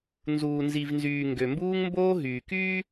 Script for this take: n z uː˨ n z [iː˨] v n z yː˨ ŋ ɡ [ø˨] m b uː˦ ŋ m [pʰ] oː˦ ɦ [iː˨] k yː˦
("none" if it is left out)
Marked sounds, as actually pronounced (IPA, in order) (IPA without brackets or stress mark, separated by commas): i˨, ø˨, b, yː˨